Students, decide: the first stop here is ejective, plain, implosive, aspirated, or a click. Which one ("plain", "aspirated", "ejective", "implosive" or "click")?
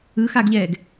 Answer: plain